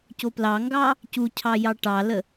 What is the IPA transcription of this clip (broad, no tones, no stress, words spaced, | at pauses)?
coplɑŋɡɑ | cucʰɑ jɑʈɑlə